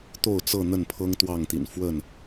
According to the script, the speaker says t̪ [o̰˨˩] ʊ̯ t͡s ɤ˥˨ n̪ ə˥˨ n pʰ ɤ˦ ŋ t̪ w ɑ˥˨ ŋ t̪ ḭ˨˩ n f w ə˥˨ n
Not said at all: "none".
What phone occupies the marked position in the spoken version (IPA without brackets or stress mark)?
o˥˨